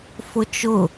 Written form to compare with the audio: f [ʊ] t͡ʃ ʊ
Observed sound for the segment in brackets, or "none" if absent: ʊ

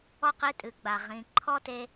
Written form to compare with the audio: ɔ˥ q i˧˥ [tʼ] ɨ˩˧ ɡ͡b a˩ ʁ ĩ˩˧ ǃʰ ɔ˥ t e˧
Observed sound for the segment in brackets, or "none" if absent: tʼ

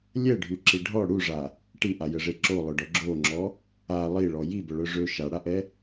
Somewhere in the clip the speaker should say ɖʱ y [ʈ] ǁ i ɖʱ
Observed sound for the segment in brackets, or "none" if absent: none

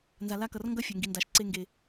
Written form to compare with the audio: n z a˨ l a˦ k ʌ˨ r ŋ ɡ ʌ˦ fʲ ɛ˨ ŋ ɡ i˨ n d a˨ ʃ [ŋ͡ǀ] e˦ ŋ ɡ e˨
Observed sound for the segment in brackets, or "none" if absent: ǀ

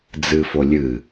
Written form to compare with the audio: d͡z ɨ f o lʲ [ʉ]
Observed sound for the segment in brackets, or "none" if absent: ɨ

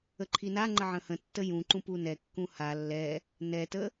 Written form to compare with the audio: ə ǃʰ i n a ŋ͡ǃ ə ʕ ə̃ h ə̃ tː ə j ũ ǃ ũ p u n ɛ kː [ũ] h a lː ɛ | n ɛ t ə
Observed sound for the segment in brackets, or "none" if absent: ũ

